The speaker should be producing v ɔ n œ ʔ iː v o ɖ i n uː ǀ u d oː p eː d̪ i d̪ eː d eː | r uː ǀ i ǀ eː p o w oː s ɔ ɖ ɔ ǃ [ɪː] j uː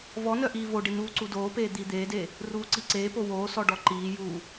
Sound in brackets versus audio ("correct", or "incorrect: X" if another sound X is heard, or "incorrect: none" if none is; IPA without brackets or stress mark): incorrect: iː